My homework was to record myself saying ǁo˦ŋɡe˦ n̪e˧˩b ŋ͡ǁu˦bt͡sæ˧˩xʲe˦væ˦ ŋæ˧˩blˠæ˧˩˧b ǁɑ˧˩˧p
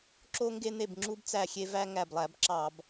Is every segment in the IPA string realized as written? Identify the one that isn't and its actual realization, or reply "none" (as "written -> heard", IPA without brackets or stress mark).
p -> b